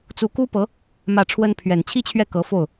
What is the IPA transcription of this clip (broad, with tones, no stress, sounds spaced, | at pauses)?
t͡s u˧˥ k u˥ p ɤ˧˥ | m ä˥˩ ʈ͡ʂʰ w ə˥ n pʰ ɥ ɛ˨˩ n t͡ɕʰ i˥ t͡ɕʰ ɥ ɛ˥˩ k ɤ˧˥ f o˥˩ ʊ̯